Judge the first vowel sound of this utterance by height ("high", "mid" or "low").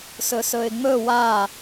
mid